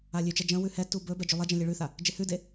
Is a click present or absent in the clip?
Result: absent